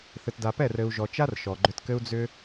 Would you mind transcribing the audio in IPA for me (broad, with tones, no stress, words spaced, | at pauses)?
θɘ˨tda˨ pɛ˦˨r ɘ˨u̯ʒɔ˨ t͡ʃa˦r ʃɔ˨ɡ͡ǃʏ˧tkɘ˦u̯ d͡zʏ˧